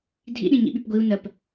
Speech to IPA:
dʱ ḭ ɗ ĩ ɲ ḭ ɓ y p ɡʷ i u̯ n ɜ p

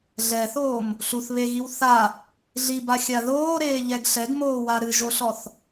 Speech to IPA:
ɮ ɛ θ oː m | ɬ u θ β e ɣ i w θ a | ɮ i b a xʲ a ð oː ɾ eː ʎ ɛ ɡ ɬ ɛ ɡ m oː w a ɾ ɨ ʒ o ɬ ɔ θ

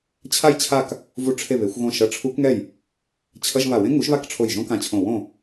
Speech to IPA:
t͡ɕʰ a˥˨ j t͡ɕʰ a˥˨ k | v u˦˥ ʈ͡ʂʰ e˥˨ β e˨˥ xʷ ɣ õ˥˨ ʃ ʌ˧˥˧ ʈ͡ʂʰ u˦˥ k ŋ ɛ˥˨ j | t͡ɕʰ ʌ˧˥˧ ʒ β a˧˩ w ẽ˦˥ ŋ u˨˥ ʒ β a˥˨ k ʈ͡ʂʰ o˧˩ j ʒ õ˦˥ k ã˧˩ t͡ɕʰ õ˧˩ w õ˥˨

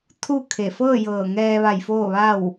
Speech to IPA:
t̪ʰ u˥˨ kʰ e˧˩ f ɤː˥˨ j ɤː˧˩ ŋ ɛː˧ ʋ a˧˩ j f oː˥˨ ʋ a˥˨ w

